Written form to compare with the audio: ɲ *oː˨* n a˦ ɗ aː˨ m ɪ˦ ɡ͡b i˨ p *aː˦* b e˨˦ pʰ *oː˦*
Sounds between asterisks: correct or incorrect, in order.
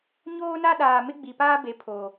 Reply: incorrect: oː˦, correct, incorrect: oː˨

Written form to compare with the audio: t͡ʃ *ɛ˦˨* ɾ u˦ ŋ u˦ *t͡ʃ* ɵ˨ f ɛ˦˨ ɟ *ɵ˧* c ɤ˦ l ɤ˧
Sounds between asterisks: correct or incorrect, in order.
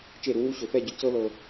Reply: incorrect: e˦˨, incorrect: ɕ, correct

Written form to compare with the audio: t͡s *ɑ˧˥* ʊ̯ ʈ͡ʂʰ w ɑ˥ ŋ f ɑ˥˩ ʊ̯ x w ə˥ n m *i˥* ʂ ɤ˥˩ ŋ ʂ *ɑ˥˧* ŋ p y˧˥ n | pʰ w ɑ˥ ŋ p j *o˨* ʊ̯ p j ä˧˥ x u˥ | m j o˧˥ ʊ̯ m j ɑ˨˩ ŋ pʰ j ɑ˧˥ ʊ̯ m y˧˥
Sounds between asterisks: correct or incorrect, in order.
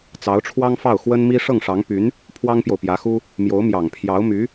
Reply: correct, correct, incorrect: ɑ˧˥, correct

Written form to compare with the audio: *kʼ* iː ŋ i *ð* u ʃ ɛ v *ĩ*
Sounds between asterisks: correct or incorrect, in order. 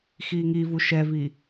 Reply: incorrect: x, incorrect: v, incorrect: i

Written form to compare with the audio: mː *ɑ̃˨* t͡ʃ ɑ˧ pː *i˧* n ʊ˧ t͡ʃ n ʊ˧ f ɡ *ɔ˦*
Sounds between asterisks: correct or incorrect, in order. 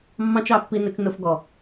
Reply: incorrect: ɑ̃˦, correct, incorrect: ɔ˨

